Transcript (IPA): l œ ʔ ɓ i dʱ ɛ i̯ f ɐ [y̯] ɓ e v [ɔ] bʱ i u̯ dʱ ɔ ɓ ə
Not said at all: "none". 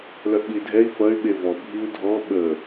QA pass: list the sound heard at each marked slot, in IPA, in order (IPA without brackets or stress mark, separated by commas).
y̯, ɔ